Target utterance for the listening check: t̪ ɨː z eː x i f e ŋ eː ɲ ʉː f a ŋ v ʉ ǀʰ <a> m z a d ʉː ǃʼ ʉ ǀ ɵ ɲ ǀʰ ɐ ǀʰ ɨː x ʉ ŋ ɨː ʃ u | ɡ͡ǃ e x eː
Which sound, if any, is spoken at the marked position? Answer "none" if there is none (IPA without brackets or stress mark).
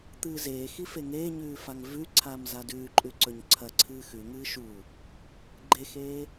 aː